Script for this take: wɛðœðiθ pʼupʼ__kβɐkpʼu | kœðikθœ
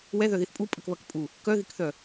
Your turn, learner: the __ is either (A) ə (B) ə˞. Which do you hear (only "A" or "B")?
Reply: A